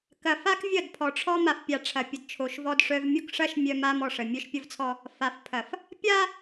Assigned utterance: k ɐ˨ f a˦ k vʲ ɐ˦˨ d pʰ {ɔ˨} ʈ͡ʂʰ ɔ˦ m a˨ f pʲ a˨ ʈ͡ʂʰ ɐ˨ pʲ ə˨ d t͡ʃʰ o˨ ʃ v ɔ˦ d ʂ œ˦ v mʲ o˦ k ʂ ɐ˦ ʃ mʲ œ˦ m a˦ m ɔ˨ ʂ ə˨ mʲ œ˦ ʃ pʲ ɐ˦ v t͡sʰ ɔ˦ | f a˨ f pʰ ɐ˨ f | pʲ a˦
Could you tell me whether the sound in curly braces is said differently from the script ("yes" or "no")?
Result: no